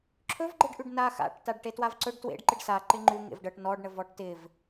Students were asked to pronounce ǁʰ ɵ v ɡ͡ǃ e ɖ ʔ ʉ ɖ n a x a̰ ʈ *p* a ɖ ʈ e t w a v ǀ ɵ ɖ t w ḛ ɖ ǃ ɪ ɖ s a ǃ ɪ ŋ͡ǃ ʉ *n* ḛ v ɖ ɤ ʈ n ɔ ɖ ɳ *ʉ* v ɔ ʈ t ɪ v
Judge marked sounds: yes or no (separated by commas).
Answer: no, no, no